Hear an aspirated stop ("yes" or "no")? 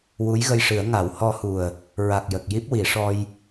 no